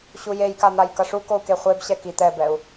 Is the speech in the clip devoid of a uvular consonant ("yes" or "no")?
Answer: no